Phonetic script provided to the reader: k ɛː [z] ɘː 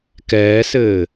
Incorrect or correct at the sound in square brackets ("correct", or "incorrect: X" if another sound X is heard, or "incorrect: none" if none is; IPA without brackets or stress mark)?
incorrect: s